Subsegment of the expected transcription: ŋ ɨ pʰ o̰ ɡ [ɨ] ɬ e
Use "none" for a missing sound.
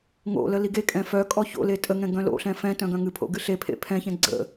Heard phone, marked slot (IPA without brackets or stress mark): ɨ